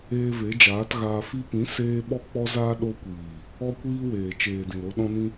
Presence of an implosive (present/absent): present